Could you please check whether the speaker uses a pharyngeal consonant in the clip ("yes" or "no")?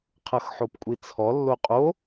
yes